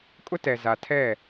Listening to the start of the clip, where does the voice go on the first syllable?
high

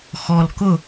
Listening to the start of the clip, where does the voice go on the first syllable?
low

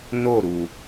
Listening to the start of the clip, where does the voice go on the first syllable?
falling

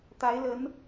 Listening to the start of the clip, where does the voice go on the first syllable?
rising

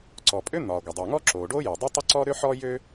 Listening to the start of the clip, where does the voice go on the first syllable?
low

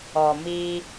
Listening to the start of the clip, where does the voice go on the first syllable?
low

